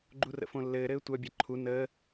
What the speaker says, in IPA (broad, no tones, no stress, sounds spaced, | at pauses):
ɡ͡ǃ u r ə̰ f õ lː ɘː ɾ ɘː tʷ œ bʲ ɛ ǃʰ u n əː